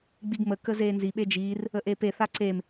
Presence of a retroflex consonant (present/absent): absent